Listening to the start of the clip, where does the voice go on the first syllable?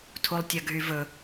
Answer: high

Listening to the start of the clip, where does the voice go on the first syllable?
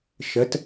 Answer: rising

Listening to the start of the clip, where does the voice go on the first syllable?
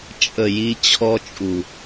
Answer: low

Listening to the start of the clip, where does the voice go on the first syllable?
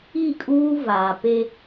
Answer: falling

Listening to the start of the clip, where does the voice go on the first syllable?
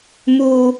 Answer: high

